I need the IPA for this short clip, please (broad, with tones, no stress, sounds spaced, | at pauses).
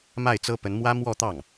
m a˥˩ ɪ̯ t͡s ɤ˥ p ə˧˥ n m w ä˥ m w ɔ˥˧ t̪ ɑ˥˩ ŋ